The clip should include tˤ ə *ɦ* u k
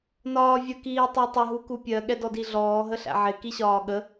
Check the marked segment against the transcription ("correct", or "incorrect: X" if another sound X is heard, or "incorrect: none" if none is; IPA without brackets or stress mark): correct